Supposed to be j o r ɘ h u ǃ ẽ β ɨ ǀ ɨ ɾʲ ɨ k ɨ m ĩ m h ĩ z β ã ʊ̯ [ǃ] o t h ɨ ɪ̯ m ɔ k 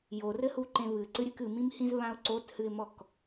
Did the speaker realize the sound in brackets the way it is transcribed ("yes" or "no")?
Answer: no